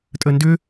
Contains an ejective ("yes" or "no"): yes